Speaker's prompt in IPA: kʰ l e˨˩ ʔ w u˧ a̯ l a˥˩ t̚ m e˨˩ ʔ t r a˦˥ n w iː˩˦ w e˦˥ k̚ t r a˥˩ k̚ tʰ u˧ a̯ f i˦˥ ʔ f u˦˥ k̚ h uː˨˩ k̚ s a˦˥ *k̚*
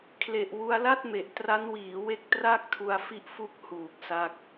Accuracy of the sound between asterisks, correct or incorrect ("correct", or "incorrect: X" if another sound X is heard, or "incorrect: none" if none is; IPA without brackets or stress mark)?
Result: correct